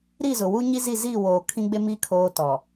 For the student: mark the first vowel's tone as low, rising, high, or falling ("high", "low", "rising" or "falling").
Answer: falling